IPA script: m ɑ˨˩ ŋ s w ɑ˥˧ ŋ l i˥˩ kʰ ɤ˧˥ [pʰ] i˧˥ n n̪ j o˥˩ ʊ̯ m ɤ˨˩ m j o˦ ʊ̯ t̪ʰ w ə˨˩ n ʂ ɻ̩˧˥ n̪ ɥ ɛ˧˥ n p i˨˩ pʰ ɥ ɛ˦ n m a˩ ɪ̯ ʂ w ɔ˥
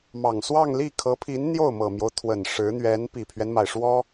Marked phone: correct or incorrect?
correct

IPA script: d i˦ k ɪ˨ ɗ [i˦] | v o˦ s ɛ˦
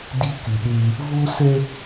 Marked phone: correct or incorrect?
incorrect: e˦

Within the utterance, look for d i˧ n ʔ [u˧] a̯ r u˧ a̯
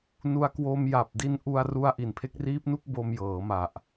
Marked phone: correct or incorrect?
correct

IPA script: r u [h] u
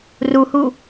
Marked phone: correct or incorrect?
correct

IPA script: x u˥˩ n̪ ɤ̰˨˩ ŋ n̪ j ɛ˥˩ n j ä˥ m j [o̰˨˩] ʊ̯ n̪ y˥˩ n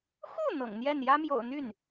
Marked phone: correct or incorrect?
correct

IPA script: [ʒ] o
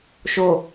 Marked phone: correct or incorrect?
incorrect: ʃ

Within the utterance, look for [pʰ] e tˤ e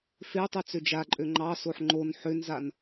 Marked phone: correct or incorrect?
incorrect: f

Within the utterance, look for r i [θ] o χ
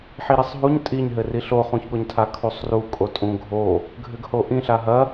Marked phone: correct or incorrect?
incorrect: ɬ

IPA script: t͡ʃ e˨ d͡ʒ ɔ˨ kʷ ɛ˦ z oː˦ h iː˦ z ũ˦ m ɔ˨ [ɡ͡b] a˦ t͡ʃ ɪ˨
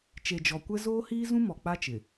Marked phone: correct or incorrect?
incorrect: k͡p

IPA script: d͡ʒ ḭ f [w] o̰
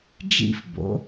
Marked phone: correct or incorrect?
incorrect: b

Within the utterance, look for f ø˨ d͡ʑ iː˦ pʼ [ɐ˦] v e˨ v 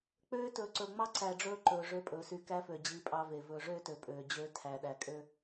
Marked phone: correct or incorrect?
incorrect: ɑ˦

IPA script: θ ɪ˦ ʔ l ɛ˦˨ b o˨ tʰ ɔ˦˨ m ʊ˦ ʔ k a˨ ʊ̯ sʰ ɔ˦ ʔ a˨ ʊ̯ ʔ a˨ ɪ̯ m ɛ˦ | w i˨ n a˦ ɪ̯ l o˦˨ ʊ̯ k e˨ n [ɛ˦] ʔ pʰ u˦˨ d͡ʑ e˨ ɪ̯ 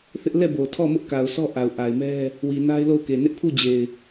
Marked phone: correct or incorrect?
incorrect: ɪ˦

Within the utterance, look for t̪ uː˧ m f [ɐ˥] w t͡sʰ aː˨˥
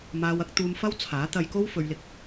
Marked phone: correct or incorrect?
correct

